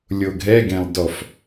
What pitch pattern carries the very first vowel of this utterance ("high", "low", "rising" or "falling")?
low